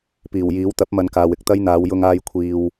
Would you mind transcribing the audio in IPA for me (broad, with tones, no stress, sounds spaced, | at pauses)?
p iː˨˩ w j iː˨˥ w t̪ ɐ˨˥ p̚ m ɐ˨ n k aː˨ w ɪ˨ k̚ t̪ ɐ˥ j n̪ aː˨˧ w j ʊ˧ ŋ aː˧ j kʷʰ iː˨ w